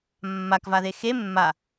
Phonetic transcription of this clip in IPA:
mː a k v a ð e x e mː a

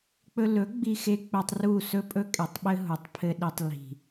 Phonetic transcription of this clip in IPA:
k͡p ɵ˧ l ɵ˨˦ ɡ͡b i˧ x e˧ k͡p ɘ˧ tˤ r u˦˨ s ɵ˦ pʼ ɵ˦ kʼ e˨ tˤ ɓ ɘ˦ ɦ u˨ tˤ pʰ ɘ˧ ɗ i˨ tˤ l i̤˨

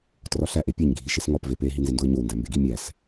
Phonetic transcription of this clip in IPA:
t r ɒ ɬ æ ʔ e pʲ e ɲ ɡʱ i ʃ e s ŋ ɒ p v e p e ɦ i n z e n d o ɪ̯ ɲ o w n d æ m b e ɡ i mʲ æ s

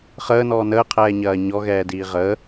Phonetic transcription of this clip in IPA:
χ əː n ɔː n əː qʰ ɛː ɲ ɐː ɲ ɔ ɣ ɛː d iː ʁ əː

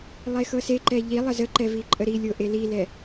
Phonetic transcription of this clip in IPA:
lˠ e x ɤ s e ǃ ɛ ʎ i lˠ ə z ə ǃ ɛ v i ǃʼ ə ɾ i lʲ o ʔ e l i l ɛ

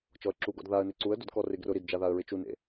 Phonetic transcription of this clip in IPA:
t͡ʃ ɔ ə̯ ǁ u ɡ ɔ̰ d ð a ə̯ n e ǀ u ə̯ d ʊ d k ɔ r ɪ ɡ r ʊ ɾ i d d͡ʒ a ð a ə̯ ɹ ɪ t͡ʃ u n ḛ

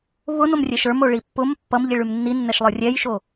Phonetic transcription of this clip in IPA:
β ʊ n o m rʲ ɛ ʃ ə˞ m o ɭ i pː ʊ m pː ʌ m ʎ i ɭ ʉ m nː i nː ɛ ʃ lˠ ə˞ rʲ ɛ j ʃ o

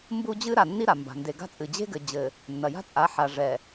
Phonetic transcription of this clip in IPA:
m b u˦ d͡ʑ ɨ˦ ɾ a˨ nː i˦ ɾ a˨ m b a̤˨ n d e˨ ɡ a̤˦ t͡sʼ ɨ˨ d͡ʑ e̤˦ ɡ ɘ˨ d͡ʑ ɘ˨ | nː ɐ˨ j a̤˦ t͡sʼ a˨˦ ħ a˨ ʐ ɛ˨

